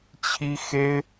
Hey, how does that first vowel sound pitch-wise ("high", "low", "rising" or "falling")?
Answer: high